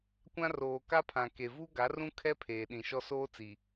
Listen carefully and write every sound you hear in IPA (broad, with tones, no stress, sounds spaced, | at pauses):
kʷ ã˦ r oː˨ k a˦ pʰ ã˨ k e˨ v u˦ ɡ a˨˦ r ũ˦ kʰ ɛ˦ pʰ eː˨ ɗ ĩ˨ ʃ ɔ˦ s oː˦ t͡s i˨